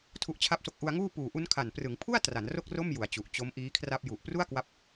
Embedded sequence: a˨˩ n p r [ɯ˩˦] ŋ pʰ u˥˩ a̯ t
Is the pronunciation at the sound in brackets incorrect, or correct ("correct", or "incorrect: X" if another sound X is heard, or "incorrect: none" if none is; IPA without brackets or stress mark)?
correct